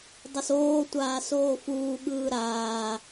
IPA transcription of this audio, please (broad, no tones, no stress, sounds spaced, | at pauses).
dˤ o s oː tʷ aː s oː f uː ɠ ɯː ɾ aː